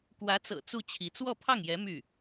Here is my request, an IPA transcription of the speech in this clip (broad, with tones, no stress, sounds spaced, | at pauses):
k w ä˧˥ t͡s ɤ̰˨˩ t͡s u˥˩ t͡ɕʰ i˧˥ t͡s w ɔ˥˧ pʰ ɑ˥˩ ŋ j ɛ˧˥ m y˥˩